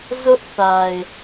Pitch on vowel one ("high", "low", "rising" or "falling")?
high